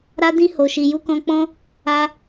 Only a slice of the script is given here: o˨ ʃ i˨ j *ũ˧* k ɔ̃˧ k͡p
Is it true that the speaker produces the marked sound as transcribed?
no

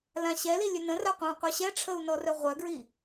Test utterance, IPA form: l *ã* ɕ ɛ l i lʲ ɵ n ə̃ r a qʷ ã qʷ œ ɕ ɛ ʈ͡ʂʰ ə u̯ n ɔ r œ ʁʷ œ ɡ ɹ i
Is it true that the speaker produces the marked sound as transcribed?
yes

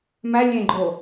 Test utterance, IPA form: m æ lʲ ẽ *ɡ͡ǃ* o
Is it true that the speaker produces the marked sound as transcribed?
yes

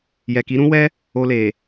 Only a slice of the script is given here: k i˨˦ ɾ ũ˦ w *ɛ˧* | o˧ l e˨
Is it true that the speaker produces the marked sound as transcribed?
no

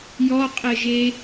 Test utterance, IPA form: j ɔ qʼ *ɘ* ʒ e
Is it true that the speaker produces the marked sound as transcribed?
yes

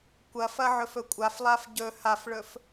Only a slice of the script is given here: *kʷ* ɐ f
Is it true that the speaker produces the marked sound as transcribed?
yes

